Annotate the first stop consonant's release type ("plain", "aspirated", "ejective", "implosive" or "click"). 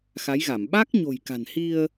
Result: implosive